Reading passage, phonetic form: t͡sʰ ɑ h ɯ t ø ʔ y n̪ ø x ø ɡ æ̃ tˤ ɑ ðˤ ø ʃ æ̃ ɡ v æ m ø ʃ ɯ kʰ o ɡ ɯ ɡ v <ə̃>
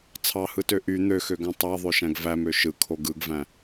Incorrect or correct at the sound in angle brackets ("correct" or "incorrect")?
incorrect